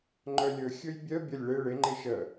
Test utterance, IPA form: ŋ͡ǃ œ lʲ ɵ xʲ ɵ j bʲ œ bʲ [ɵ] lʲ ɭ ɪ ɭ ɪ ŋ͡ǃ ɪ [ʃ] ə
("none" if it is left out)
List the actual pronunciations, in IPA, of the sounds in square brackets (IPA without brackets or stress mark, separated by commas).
ə, ʃ